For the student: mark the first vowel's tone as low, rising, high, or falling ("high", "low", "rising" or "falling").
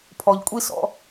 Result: low